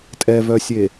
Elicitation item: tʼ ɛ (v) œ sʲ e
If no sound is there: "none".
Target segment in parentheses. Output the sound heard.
v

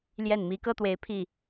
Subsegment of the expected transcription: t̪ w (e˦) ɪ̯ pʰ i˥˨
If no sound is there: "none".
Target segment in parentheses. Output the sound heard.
e˨˦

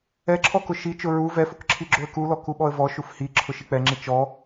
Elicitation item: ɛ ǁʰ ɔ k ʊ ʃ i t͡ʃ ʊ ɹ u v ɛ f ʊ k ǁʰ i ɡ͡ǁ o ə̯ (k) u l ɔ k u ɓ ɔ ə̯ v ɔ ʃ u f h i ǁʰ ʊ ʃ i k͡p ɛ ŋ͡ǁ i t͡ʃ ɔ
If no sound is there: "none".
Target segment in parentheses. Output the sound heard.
k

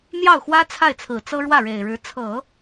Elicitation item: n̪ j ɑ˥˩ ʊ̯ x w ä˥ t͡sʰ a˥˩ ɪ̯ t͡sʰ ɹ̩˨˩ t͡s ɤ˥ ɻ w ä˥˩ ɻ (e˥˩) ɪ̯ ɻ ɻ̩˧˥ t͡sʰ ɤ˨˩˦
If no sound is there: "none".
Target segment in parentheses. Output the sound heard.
e˨˩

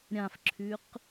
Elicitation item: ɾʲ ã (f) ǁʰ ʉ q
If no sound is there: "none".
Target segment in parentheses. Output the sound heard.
f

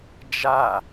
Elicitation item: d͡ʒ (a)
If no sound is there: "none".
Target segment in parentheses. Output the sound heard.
a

